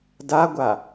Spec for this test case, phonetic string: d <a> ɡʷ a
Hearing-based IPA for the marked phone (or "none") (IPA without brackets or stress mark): a